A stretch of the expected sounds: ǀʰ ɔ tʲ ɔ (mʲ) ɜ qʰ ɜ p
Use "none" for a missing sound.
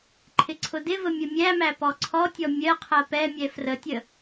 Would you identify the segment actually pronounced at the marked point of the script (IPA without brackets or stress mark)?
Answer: mʲ